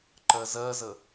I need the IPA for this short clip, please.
ǃ ɜ z ɜ z ə

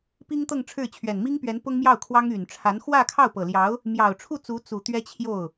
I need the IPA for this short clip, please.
p i˥ ŋ t̪ ɤ˥˧ ŋ ʈ͡ʂʰ ɻ̩˥˩ t͡ɕʰ ɥ ɛ˨˩ n m i˥ ŋ p ɥ ɛ˧˥ n p ʊ˥ ŋ m j ɑ˥˩ ʊ̯ kʰ w ɑ˥ ŋ y˨˩ n ʈ͡ʂʰ a˧˥ n x w ä˥˧ kʰ ɑ˥˩ ʊ̯ p ɤ˨˩ l j ɑ˧˥ ʊ̯ | m j ɑ˨˩ ʊ̯ ʈ͡ʂʰ u˥˩ t͡s u˧˥ t͡s u˨˩ t̪ ɥ ɛ˥ t͡ɕʰ j o˥˩ ʊ̯

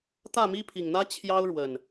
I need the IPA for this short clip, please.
t̪ ä˥˨ m i˦ pʰ i˨˩ ŋ n̪ ä˦ t͡ɕʰ j ɑ˦ ʊ̯ ɻ w ə˨˩ n

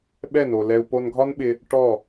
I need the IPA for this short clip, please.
ɓ ɛ˥˩ n o˩ l ɛ˧ u̯ p o˧ n ɡʱ ɒ˥ n ɓ ɪ˧ | ʈ ɔ˥˩

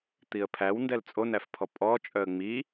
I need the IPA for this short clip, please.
t̪ i ə̯ pʰ æ w n d ɛ l t͡sʼ o n æ f pʰ ɔ pʼ ɔ t͡ʃʼ œ ə̯ ŋ͡m i

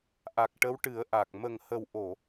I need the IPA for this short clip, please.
ʔ a˨˩ k̚ ʈ ə˧˥ w ʈ ɨ˨˩˦ ə̯ ʔ a˨˩ k̚ m ə˨˩ ŋ h ə˨˩ w ʔ o˨˩˨

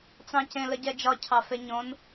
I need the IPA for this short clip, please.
t͡s ɑ̃ c ẽ l ə ɟ ɛ d͡ʒ ɒ cʰ ɑ f e ɲ õ n

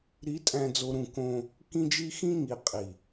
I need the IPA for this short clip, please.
ɾ i˨˦ tʼ æ̃˨ d͡z o˨ ɾ ũ˨ k õ˦ | k ĩ˦ d͡ʒ i˦ x ĩ˦ ŋ i˨ qʼ i˨

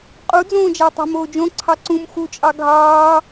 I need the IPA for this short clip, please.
qʼ u d͡z õː d͡ʒ æ tˤ æ̤ m oː d͡ʒ õ ǀʰ ɑ ǀ ũ m x u t͡ʃʼ ɑ ɡʱ ɑː

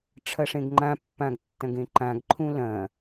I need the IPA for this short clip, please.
ʈ͡ʂʰ ɐ ʂ ẽ ɡ ŋ͡ǃ ã pː ã ɡ tː ɐ̃ ɡ ẽ ǃ ã ɡ ǃʰ ũ l ɐ̃

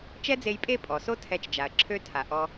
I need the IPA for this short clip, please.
t͡ʃ ɛ˦ d͡z e˧ j pʼ e˦˨ pʼ ɔ˨ s o˦ tʰ ɛ˧ t͡ʃ d͡ʒ a˨ ɐ̯ ǁʰ ø˧ tʰ a˨ ʔ ɔ˧

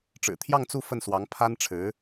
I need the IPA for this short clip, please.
ʈ͡ʂ ɻ̩˨˩ t̪ʰ j ɑ˥˧ ŋ t͡s u˥˧ f ə˥˩ n s w ɑ˧˥ ŋ pʰ a˥ n ʈ͡ʂʰ ɻ̩˧˥

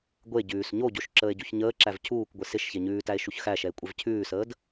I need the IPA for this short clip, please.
ɡʷ e ɟ ʉː s ɲ o ɟ o ʃ ǁ əː e̯ ɟ u ç ɲ əː ǁ æ v cʰ uː k ɡʷ ɪ s ɪ ʃ ç e ɲ ʉː t æ e̯ ʃ u ç x æ ʃ ɛ e̯ kʷʼ ɛ v cʰ ʉː s əː d

